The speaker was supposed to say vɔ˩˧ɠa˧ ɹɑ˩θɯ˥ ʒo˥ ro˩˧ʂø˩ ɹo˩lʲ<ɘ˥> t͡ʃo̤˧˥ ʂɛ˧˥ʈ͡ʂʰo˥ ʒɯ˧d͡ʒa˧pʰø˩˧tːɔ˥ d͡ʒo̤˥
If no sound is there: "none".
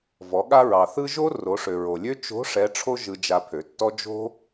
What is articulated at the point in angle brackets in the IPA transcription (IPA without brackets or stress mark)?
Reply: ø˥